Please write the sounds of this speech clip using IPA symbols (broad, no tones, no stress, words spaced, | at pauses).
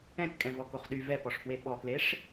ɛ̃tkʼɛ̃vɔkoχ ɗy vɛpɔʂfwe ɓɔkleʂ